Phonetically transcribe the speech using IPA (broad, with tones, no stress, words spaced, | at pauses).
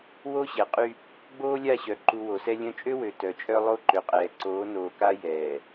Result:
wo˦ɕɛ˨ qʼy˦ | ɡ͡boː˦lʲa˦˨ɕœ˨ ǃu˨ wo˨sɛ˦ lʲœ̃˦ t͡ʃʼø˦wø˨ tœ˨t͡ʃʼœ˦ lˠo˦ǃø˨qʼɛː˨ ǀoː˨˦noː˨ka˦ jɛː˨